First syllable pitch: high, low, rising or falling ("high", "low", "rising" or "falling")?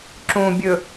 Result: low